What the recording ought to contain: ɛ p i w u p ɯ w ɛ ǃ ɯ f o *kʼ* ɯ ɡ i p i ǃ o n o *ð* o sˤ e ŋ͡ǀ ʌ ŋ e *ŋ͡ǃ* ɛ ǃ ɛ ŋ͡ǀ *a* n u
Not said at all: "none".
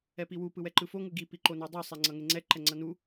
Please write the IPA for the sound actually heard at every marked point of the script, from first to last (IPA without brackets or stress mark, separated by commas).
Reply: ŋ, dˤ, ŋ͡ǀ, ʌ